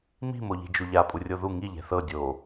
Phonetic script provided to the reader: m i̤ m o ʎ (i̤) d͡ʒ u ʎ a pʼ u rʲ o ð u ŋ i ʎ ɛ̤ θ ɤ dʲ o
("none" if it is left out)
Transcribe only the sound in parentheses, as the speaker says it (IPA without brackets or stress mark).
i̤